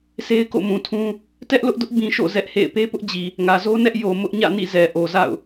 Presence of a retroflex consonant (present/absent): absent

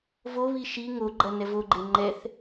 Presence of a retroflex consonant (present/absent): absent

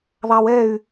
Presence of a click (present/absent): absent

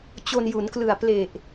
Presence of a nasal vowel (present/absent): absent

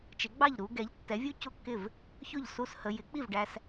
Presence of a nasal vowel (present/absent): absent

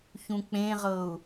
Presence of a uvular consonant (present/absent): present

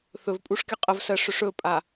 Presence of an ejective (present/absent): present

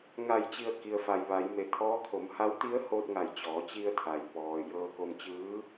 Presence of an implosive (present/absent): absent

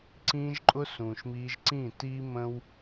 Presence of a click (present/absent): present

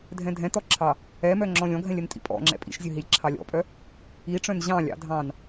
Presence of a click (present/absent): present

